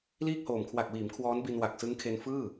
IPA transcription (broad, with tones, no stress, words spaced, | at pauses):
liː˥˩k̚hoː˨˩m kʰwa˨˩k̚wiː˩˦m kʰwɔː˦˥nbi˧n wa˨˩k̚sɯ˦˥ŋ kʰe˧nfɯː˥˩